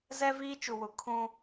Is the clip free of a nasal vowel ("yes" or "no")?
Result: no